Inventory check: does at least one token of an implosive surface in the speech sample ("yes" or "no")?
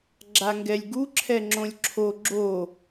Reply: no